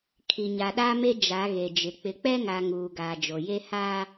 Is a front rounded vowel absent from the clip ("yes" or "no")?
yes